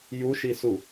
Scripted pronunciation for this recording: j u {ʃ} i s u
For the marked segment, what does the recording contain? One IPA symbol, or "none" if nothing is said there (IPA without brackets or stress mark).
ʃ